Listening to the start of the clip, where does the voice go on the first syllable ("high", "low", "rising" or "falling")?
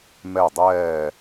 falling